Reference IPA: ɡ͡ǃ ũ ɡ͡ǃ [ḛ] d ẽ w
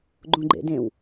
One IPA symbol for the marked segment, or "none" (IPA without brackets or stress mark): ḛ